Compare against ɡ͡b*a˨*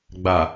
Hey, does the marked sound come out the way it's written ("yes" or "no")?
yes